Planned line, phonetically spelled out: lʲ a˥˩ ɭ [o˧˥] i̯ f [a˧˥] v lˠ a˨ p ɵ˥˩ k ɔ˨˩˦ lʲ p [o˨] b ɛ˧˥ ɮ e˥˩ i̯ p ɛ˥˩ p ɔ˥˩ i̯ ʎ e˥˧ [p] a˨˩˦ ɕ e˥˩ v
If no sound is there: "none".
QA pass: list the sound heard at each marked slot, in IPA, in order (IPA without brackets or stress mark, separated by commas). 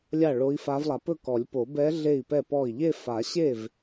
o˧˥, a˧˥, o˨˩˦, f